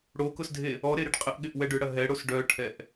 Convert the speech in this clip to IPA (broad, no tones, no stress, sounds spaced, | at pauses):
ɽ o k ʊ s dʱ e | ɔ ɾ e ɾ ɪ ɖ qʼ ɪ ʔ ɠ ɪ ʔ w ɛ ɖ ʏ ɽ ɐ ɦ ɛ ɽ o s ɖ œ ʈʰ ɛ ʔ